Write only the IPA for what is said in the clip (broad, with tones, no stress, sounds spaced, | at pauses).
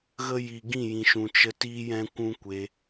ɣ ə˦ j i˨ ɡ ĩ˦˨ j ĩ˨ ʃ ũ˨ t͡ʃ ə˧ t iː˦ j ɛ̃˦ kʷ ũ˦ kʷ e˧